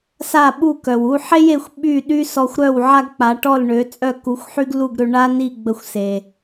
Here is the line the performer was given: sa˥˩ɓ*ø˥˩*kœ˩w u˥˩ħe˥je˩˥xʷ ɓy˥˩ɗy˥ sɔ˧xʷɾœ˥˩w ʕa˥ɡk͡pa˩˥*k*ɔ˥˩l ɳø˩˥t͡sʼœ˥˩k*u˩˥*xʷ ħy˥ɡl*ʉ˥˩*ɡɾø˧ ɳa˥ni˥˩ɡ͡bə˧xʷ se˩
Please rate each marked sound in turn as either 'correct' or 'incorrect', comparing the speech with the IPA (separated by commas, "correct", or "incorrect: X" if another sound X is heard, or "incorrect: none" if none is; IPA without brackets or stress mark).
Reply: incorrect: u˥˩, incorrect: ʈ, correct, incorrect: u˥˩